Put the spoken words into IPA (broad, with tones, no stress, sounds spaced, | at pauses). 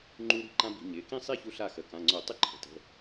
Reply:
ŋ͡ǃ u˦˥ ɾ i̤˦˥ ǃ ã˦˥ b i̤˩˧ ɲ ɪ˩˧˩ k ĩ˥˨ sˤ i˥˨ ç u˧ ɬ a˥˨ x ə˩˧˩ k ã˩˧˩ ŋ͡ǀ o˧˩˧ tˤ ɪ˦˥ ǃʰ ə̤˩˧ t ə̤˩˧˩